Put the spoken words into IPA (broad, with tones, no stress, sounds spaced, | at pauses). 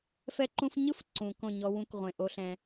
f ɛ˦ ǃ ũ˦ f ɲ ɯ˦ f ǀ ũ˨ k õ˦˨ ɲ ɔ˦ w ũ˦ k ʁʷ ẽ˨ ʔ o˦ ɬ ɛ̃˦